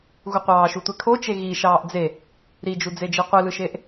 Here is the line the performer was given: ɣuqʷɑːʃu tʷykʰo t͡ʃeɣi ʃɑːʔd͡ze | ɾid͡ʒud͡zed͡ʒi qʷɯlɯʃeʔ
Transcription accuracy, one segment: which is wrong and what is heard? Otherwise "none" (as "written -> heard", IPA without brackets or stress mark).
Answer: y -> e